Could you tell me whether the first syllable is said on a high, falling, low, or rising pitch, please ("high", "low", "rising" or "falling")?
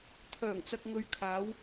low